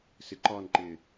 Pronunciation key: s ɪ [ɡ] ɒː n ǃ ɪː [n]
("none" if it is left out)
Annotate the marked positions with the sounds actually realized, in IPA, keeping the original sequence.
ǃ, none

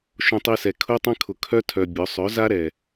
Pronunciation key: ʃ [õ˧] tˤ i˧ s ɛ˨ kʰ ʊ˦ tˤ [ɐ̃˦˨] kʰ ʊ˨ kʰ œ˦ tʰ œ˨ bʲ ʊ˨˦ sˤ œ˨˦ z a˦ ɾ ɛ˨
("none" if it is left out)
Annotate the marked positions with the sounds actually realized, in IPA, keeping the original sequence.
õ˧, ɐ̃˦

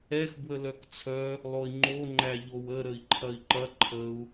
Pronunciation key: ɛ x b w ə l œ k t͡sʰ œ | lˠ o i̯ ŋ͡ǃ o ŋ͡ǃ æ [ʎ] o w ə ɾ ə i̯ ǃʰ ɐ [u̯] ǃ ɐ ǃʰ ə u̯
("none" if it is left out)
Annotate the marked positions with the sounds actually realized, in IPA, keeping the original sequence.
ʎ, i̯

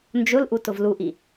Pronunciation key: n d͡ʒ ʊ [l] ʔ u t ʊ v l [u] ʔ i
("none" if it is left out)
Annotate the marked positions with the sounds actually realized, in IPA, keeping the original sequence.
l, u

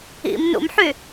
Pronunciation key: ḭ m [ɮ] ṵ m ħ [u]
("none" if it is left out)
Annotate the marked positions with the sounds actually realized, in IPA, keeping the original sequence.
n, y

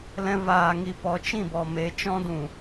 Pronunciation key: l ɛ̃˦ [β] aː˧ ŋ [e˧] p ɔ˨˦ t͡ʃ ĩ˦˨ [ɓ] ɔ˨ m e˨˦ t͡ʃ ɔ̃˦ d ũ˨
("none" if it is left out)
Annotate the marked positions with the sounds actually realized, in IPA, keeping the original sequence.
v, i˧, b

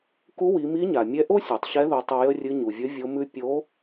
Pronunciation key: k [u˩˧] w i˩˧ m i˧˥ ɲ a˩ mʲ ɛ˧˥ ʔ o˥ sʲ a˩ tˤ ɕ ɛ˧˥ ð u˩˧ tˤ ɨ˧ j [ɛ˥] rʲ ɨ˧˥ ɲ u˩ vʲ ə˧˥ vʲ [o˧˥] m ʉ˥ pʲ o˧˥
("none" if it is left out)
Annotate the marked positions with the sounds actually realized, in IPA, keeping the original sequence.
u˧˥, ə˥, o˧˥

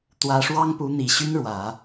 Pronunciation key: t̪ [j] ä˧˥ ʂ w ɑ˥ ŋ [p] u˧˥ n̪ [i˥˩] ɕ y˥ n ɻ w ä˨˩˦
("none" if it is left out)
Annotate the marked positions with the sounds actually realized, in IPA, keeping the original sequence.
w, p, i˨˩

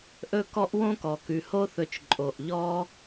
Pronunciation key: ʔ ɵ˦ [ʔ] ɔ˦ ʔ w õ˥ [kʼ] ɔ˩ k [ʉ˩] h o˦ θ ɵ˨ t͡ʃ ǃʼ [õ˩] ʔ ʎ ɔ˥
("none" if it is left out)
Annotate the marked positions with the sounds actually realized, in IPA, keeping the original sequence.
k, k, ʉ˩, o˩

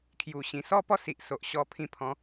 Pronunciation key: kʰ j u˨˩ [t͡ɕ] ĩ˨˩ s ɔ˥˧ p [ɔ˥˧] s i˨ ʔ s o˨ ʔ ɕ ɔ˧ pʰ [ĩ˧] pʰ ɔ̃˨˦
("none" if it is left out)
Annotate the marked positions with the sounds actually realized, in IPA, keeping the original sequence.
ɕ, ɔ˥˧, ĩ˧

